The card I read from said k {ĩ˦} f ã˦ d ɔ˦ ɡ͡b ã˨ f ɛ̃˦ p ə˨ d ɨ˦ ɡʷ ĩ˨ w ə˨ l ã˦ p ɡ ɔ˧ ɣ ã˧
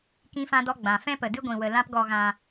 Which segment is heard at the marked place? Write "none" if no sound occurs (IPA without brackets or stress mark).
ĩ˦